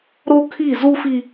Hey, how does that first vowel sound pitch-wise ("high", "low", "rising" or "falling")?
high